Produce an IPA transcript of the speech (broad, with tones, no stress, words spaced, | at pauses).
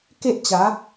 ke˦ʔt͡ɕa˨˦